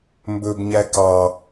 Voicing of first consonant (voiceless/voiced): voiced